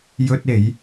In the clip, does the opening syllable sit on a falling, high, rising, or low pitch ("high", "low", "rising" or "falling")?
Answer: high